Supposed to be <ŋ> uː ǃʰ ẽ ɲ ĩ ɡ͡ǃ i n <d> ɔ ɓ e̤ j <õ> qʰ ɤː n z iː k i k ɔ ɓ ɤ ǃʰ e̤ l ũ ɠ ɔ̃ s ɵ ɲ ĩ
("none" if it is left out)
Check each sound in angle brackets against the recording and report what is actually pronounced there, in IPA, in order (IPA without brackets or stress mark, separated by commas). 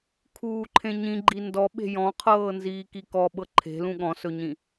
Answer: kʰ, d, ɔ̃